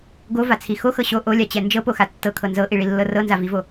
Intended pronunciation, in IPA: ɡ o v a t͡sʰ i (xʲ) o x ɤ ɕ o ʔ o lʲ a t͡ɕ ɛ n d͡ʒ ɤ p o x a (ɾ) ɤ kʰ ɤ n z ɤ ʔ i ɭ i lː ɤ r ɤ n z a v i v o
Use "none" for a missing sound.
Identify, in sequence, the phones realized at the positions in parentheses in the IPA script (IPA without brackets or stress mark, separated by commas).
x, tː